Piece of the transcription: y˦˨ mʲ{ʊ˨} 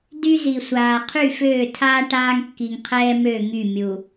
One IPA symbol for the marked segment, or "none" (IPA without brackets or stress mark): u˨